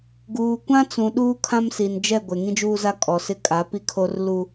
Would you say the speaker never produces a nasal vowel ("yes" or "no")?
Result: no